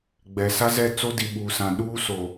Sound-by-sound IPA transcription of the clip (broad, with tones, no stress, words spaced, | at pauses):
ɡ͡bɛ˨ sa˦zɛ˦˨ t͡so˦di˨ɓuː˨sã˨ ɗuː˦so˨